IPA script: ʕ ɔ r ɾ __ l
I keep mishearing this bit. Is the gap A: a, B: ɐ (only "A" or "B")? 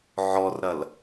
B